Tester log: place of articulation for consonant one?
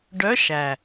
retroflex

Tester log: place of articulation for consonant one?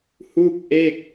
glottal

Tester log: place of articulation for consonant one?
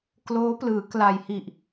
velar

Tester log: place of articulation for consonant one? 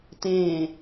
alveolar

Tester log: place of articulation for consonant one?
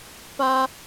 labial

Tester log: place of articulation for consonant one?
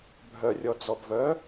labial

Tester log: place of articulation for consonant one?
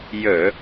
palatal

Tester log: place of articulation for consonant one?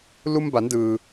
alveolar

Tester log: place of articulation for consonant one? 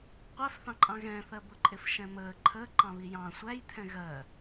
uvular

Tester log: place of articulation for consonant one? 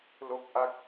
alveolar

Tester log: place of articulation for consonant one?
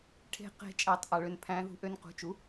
retroflex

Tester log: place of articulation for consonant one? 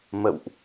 labial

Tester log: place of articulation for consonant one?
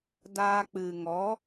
alveolar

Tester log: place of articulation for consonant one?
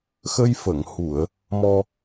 velar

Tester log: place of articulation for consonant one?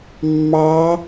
labial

